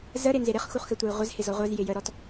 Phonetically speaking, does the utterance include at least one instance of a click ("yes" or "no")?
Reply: no